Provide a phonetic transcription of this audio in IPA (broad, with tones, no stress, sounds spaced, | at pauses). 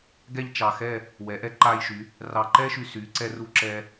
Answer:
ɡ ɛ˥˧ ʎ t͡ʃ ɑ˧˩ x ɛ˥˧ | w ɛ˩˧ ʔ ɛ˧ ǃ a˧ j ʃ y˩˧ | r ɑ˧˩ ǃ ɛ˥ ʃ y˧ s y˩˧ ǀ ɛ˧ r u˧ ǁ ɛ˧